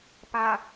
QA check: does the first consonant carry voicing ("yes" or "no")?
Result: no